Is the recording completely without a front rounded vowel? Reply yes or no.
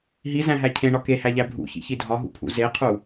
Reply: yes